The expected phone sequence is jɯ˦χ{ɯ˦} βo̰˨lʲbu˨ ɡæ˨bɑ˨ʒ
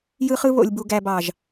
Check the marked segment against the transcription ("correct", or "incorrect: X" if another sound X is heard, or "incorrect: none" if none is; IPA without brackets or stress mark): correct